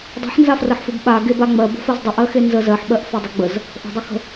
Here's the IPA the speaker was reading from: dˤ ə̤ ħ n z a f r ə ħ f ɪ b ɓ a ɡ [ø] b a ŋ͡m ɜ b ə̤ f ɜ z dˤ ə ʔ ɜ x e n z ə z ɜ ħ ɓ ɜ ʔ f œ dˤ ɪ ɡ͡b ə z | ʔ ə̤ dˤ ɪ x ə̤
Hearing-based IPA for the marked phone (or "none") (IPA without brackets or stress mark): e